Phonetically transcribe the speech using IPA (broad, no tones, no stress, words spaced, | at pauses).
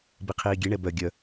biqʰiːɡʲe ɳɛbœ ɡʲœ